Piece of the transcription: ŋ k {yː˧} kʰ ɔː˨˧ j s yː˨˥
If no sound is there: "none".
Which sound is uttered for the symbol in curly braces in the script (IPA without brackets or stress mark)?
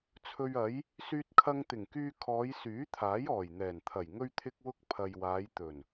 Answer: yː˧